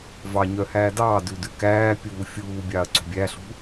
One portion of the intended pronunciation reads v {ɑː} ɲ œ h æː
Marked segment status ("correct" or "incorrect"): incorrect